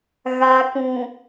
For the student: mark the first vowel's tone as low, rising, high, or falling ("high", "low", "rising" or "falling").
low